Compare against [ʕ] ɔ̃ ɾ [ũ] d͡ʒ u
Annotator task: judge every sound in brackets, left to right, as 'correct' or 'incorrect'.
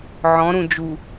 correct, correct

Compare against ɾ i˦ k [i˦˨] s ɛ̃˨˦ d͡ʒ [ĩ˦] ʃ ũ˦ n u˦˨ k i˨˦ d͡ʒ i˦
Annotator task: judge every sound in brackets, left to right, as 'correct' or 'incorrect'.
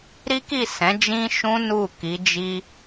correct, correct

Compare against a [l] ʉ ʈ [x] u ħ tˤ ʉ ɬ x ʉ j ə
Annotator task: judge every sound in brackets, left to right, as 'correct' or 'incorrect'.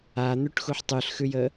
incorrect: n̪, correct

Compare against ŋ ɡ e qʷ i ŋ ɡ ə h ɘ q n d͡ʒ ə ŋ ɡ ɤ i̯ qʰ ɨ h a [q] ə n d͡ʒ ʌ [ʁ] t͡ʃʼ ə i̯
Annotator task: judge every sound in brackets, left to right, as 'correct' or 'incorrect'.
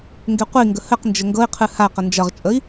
correct, correct

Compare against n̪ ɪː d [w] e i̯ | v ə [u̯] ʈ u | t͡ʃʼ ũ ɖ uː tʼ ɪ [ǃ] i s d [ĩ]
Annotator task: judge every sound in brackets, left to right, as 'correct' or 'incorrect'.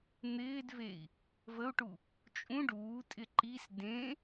incorrect: v, correct, correct, incorrect: ẽ

